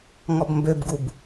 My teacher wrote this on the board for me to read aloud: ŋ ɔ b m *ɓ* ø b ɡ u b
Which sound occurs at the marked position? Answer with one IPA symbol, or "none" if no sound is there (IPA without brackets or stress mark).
b